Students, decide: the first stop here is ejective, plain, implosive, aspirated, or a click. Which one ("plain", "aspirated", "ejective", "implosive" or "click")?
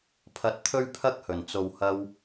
aspirated